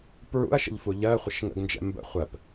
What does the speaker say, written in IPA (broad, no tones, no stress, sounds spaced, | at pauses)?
p ɹ ṵ ɐ̯ ʃ ə̰ ʎ f u ʎ ɜ χʷ ɪ ʃ ŋ ə̰ ɡ n d͡ʒ ɛ̰ m b ə̰ χʷ ɜ p